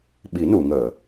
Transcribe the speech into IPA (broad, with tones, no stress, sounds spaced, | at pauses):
ɓ i˨˩˦ n u˨˩˨ ŋ əː˨˩˨